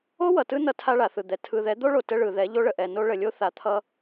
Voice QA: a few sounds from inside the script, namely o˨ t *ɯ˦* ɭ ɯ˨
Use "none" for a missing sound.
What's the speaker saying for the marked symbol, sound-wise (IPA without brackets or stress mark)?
ə˦